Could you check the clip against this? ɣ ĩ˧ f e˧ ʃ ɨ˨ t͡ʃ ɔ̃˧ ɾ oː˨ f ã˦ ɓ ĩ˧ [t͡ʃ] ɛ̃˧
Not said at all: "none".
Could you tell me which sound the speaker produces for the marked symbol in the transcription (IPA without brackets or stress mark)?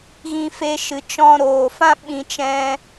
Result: t͡ʃ